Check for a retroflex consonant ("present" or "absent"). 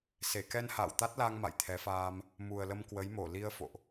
absent